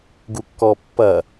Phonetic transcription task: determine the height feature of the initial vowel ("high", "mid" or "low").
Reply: high